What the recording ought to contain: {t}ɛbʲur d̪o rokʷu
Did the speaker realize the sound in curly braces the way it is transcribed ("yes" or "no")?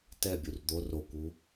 yes